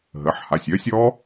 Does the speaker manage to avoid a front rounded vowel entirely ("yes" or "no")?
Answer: no